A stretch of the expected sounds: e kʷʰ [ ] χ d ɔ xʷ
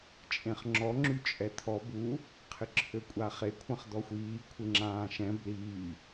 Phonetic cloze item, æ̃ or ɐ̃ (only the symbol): ɐ̃